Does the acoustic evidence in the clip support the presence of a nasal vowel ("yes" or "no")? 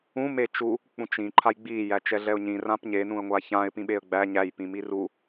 yes